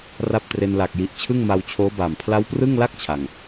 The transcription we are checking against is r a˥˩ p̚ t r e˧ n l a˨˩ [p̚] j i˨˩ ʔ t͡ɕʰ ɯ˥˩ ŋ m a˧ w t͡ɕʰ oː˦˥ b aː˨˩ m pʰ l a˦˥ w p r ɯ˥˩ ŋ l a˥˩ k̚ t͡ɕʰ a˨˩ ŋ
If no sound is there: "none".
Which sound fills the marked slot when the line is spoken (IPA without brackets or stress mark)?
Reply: k̚